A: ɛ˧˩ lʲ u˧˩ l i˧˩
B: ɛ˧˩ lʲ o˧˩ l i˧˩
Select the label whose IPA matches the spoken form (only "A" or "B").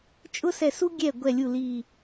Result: A